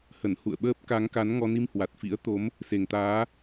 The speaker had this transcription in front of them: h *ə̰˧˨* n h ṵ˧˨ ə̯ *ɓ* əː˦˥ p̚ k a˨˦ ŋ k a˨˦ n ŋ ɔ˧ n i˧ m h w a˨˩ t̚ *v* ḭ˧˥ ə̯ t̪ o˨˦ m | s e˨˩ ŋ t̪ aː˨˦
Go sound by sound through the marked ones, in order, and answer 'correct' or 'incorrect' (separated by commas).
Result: incorrect, correct, incorrect